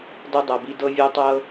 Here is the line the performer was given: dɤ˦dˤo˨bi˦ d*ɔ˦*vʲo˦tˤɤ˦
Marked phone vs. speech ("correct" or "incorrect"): incorrect